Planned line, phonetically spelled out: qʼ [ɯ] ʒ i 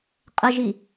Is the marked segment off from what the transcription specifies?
yes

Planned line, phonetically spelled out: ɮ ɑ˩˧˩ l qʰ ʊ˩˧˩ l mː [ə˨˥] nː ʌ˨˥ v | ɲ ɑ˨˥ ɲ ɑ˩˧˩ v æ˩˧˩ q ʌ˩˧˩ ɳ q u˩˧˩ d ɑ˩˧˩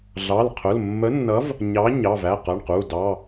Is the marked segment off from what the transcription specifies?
no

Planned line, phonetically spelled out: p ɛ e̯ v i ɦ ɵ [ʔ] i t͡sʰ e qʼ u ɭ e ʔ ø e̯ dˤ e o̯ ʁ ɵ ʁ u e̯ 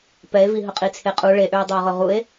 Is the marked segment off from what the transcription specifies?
yes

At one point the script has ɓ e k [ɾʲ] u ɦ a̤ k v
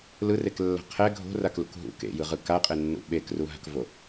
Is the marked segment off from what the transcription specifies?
yes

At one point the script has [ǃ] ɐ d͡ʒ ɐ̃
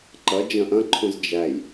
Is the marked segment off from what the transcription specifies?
no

